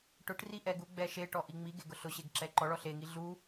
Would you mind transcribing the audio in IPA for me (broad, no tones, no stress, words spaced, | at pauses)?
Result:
ʈʊʈri ʔɛɡuɡ͡bɛ ʃeʈɔʔ iŋ͡miɡe ɡʊɬʊɕeɡ ǁɛǃɔɭɔ ɬeŋi ɮu